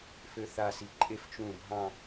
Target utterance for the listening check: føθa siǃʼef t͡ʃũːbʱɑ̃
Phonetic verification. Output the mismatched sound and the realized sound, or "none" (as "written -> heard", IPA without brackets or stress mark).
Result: none